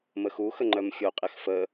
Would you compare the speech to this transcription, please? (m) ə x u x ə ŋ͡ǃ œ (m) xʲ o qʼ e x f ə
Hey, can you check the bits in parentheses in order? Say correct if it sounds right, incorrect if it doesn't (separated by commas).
correct, correct